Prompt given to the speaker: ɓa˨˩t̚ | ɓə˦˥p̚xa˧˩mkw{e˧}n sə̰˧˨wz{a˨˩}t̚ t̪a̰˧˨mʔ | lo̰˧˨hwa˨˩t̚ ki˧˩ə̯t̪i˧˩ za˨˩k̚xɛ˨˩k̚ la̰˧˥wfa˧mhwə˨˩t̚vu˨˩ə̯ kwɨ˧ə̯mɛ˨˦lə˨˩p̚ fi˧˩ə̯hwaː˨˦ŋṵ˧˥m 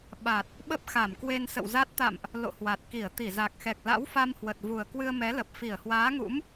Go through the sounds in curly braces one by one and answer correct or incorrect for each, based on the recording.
correct, incorrect: a˦˥

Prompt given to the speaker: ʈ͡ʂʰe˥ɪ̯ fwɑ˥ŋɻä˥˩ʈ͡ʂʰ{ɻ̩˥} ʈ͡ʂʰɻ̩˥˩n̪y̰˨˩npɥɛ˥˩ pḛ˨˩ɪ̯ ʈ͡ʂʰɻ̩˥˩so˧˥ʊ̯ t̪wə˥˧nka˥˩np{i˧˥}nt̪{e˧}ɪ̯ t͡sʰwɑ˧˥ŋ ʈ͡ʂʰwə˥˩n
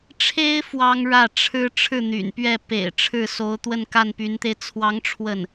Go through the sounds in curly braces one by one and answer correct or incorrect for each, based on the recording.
correct, incorrect: y˧˥, correct

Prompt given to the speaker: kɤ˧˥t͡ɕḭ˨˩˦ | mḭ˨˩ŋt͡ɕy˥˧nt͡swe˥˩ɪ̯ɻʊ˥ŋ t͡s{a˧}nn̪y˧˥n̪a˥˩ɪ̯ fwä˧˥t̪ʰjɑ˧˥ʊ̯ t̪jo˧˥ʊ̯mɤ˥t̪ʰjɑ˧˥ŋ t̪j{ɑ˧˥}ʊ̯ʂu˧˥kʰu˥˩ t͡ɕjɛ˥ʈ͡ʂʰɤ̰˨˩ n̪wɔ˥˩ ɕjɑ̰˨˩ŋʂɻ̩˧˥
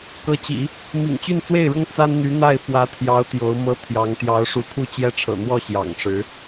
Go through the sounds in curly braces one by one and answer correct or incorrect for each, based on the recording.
incorrect: a˥, correct

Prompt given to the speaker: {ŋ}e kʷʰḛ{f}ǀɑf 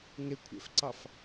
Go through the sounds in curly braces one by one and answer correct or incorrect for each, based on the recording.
correct, correct

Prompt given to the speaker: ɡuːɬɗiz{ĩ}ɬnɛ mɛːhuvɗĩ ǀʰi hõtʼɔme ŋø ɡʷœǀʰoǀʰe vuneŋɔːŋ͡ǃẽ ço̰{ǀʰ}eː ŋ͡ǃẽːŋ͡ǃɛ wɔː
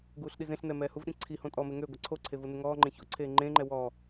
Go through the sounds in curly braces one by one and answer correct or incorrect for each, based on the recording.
incorrect: ẽ, correct

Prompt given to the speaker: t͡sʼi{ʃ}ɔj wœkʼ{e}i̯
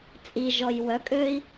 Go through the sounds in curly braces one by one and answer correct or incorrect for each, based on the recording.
incorrect: ʒ, incorrect: ø

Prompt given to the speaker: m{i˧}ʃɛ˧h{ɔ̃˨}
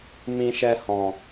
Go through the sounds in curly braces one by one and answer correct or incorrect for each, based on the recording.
incorrect: ĩ˧, correct

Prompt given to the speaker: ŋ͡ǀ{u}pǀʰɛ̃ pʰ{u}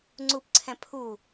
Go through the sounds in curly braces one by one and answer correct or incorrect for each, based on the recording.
correct, correct

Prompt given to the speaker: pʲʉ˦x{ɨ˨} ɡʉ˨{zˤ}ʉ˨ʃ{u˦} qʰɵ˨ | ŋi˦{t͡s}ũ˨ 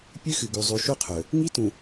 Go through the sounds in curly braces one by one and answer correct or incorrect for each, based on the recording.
correct, correct, correct, incorrect: t

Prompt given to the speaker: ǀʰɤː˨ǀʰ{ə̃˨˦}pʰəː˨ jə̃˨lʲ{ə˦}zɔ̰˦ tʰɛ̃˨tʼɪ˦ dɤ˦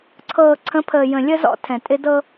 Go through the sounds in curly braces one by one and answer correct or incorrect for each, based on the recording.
correct, correct

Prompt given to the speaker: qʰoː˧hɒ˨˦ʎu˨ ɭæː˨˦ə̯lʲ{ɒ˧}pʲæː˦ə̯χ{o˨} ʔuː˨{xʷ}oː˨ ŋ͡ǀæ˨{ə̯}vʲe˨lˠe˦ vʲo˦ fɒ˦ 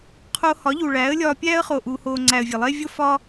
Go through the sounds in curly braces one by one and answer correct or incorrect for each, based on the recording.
incorrect: ɒː˧, correct, incorrect: h, correct

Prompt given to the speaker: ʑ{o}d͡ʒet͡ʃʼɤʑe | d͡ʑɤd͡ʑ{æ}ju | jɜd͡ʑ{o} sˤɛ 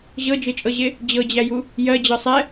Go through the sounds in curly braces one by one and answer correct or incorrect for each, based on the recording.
incorrect: ɤ, correct, incorrect: ɤ

